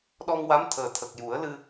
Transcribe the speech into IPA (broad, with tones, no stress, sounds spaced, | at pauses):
ɗ ɔ˧ ŋ w a˧˥ m t̪ʰ əː˨˩ t̪ʰ ə˨˩ k̚ j u˨˩˦ ə̯ l ɨ˧